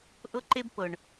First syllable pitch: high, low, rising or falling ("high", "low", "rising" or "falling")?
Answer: high